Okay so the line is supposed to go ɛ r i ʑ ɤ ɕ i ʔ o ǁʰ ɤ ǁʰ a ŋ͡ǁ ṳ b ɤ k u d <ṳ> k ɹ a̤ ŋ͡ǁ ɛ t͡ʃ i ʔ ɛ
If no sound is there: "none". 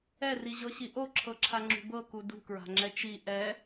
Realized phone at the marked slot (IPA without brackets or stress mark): ṳ